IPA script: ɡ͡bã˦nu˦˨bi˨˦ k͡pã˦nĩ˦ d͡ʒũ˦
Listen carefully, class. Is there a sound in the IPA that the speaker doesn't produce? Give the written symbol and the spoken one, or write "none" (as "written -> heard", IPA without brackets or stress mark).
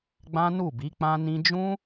none